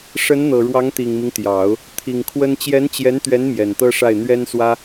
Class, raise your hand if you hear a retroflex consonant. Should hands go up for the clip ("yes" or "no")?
yes